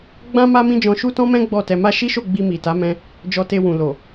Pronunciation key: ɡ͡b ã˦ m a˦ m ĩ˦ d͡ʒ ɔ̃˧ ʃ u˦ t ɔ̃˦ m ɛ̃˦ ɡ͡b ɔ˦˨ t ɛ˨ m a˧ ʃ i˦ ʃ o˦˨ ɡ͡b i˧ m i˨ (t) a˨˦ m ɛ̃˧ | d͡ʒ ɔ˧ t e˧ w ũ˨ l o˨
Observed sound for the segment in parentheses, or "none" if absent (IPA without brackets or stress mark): t